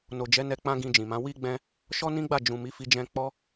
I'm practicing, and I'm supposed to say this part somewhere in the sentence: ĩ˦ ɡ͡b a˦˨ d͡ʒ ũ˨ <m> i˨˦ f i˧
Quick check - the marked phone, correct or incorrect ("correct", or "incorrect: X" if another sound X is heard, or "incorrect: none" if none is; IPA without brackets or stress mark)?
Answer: correct